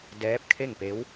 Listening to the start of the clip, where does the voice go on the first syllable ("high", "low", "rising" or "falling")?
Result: rising